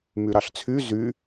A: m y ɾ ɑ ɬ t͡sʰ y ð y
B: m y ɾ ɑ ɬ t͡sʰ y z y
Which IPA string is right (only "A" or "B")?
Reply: B